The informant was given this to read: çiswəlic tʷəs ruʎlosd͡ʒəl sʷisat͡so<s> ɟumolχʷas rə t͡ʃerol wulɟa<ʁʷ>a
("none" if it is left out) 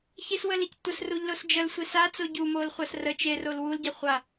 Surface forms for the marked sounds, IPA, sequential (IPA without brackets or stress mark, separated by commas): none, χʷ